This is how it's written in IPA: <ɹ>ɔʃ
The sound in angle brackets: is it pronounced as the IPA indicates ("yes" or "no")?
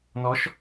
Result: no